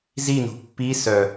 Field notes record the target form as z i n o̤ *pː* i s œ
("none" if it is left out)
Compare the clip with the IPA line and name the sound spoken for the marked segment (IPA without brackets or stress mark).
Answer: pː